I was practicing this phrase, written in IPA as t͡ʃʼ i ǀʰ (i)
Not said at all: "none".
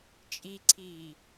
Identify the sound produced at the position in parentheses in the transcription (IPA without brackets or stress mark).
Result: iː